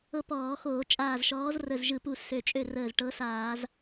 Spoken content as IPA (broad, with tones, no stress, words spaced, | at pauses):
ɤ˦pɔː˧˩˧ xoː˧˩˧t͡ʃʼaː˧˩zʃɔː˨˥z rə˧˩zʒɯ˧˩˧pu˧˩ sø˧˩t͡ʃʼø˥˩rəː˧˩z ʈɤ˨˥saː˧˩˧z